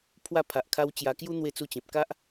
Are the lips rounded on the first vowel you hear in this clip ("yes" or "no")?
no